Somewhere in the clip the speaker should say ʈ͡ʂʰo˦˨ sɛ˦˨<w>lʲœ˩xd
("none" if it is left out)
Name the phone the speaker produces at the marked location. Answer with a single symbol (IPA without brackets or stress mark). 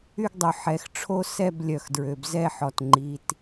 b